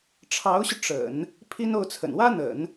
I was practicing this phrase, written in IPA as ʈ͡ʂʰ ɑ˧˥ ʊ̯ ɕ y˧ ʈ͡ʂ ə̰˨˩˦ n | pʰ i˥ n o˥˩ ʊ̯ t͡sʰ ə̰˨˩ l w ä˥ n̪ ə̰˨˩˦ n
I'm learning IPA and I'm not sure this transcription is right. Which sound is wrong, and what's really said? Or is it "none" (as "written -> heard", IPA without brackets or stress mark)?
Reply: l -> n